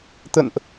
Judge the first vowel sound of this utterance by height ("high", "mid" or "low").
mid